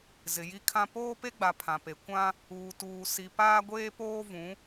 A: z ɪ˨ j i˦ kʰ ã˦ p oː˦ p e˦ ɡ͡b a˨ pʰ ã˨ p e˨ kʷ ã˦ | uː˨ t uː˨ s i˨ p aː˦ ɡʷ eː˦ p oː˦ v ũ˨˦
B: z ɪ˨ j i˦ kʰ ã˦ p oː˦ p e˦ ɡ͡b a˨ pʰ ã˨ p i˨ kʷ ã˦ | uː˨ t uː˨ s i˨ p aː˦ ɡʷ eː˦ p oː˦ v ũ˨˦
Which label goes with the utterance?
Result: A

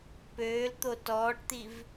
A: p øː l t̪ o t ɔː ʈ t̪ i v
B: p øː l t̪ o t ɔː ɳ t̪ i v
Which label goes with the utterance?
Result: A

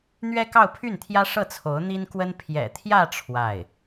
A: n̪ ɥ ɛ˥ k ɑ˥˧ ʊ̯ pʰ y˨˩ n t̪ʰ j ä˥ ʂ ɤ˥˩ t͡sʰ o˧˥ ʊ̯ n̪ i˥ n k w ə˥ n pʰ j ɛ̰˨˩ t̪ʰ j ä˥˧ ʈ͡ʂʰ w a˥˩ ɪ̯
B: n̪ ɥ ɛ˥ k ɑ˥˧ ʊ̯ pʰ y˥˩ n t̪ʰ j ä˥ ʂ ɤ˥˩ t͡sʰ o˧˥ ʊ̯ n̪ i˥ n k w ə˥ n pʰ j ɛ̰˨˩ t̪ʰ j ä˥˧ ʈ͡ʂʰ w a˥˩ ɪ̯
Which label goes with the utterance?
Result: B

